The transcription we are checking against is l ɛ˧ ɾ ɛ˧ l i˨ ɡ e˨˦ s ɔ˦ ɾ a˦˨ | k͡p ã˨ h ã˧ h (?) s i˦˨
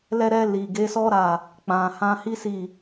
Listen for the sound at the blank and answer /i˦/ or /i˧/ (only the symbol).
i˦